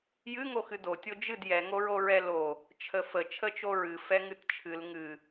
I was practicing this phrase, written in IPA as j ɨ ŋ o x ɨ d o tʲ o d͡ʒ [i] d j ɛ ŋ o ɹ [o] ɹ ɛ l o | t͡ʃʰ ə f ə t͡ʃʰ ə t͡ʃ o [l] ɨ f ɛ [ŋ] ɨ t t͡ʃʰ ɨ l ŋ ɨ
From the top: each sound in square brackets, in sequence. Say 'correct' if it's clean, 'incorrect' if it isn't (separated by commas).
incorrect, correct, incorrect, correct